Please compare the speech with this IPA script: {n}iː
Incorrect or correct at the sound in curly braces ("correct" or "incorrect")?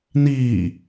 correct